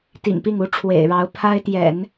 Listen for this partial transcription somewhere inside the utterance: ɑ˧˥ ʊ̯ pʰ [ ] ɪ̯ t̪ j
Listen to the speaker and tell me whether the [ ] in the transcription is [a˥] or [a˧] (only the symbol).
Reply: a˥